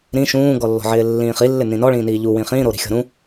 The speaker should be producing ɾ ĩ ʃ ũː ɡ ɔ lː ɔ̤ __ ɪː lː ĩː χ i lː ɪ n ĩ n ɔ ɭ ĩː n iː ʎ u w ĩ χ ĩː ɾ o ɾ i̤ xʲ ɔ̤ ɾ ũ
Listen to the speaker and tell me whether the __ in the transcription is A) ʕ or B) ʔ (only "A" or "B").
A